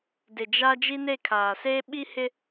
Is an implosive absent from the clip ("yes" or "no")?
no